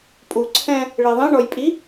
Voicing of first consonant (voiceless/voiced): voiceless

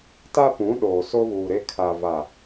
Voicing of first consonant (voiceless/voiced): voiceless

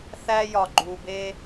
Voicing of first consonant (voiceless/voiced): voiceless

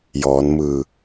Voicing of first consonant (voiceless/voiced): voiced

